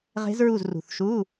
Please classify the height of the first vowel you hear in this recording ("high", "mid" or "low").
mid